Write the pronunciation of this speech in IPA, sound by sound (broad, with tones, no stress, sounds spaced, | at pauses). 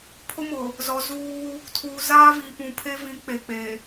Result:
pʰ ʊ˦ m ʊ˨ | z ɔ˨ z uː˦ | tʰ uː˨ z aː˦ v iː˨ p ũ˨ pʰ e˦ v ĩ˨˦ k͡p e˨ k͡p e˨